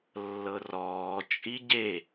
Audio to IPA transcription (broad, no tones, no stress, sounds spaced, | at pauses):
lː ɤ r ɔː t͡ʃʼ i ɟ e